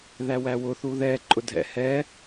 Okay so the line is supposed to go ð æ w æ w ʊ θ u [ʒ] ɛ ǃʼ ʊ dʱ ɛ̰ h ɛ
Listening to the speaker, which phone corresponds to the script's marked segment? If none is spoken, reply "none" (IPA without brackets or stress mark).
ð